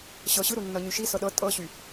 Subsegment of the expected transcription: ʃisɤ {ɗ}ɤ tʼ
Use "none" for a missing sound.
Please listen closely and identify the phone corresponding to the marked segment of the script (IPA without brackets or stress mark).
ɗ